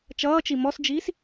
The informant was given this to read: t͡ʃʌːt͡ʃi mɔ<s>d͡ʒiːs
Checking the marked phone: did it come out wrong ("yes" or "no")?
no